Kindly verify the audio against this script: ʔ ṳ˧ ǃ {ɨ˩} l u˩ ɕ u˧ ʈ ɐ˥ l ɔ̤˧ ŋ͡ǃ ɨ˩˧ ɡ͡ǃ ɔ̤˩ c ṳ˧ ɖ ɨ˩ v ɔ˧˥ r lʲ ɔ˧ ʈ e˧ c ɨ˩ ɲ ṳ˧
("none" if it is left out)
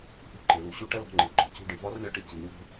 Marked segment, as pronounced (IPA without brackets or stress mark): e˩